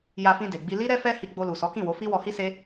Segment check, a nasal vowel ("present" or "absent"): present